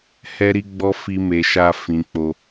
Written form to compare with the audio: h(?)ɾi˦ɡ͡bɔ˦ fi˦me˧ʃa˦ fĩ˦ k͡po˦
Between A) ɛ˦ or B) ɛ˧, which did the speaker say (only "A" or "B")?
A